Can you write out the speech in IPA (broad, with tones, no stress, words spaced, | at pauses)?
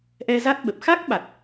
ʔɛ˧za˦˥t̚ ɓə˨˩p̚ xa˦˥k̚ ɓa˨˩t̚